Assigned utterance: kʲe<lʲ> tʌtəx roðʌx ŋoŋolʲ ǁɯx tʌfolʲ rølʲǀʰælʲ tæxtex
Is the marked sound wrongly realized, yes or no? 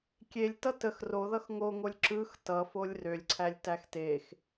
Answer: no